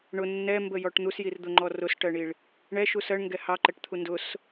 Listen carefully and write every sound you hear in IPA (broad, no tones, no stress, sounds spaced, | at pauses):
ɳ ʊ nː ɛ m b ə j ɔ ʈ n̪ u s j i r d̪ ʊ ŋ͡ǃ ɔ r ʊ s ʈ ɜ ɳ i ɭ | ɳ ɛ ʃ u s ɜ ɳ ŋ ɡ ɛ h ɑ ǃ ɛ ʈ t̪ʰ u n d ʊ s